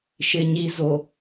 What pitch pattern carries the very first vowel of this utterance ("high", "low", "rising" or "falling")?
low